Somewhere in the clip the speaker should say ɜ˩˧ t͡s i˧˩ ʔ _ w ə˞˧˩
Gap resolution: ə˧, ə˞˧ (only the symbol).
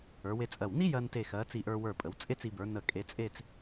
ə˞˧